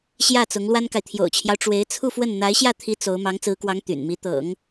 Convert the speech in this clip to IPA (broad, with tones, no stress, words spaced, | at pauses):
ɕjä˥˩t͡sʊ˧˥ŋ lwa˥nka˨ɪ̯ t̪ʰjo̰˨˩ʊ̯t͡ɕʰjɑ˦ʊ̯ ʈ͡ʂwe˧˥ɪ̯t͡sʰu˥˧fwə˥˩n n̪a˧˥ɪ̯ɕjä˥˩t̪ʰi˧˥ t͡so˧˥ʊ̯ mɑ˧˥ŋt͡sɹ̩˧˥kwɑ˧˥ŋ t̪y̰˨˩nmi˧˥ t̪ɤ̰˨˩˦ŋ